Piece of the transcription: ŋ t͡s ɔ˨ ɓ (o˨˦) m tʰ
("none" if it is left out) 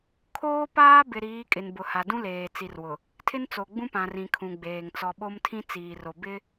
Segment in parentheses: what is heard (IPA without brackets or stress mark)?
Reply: o˦